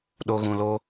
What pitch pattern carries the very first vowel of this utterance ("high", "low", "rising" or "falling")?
high